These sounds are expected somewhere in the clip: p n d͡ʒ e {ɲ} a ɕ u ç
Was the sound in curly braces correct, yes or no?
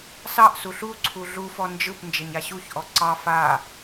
yes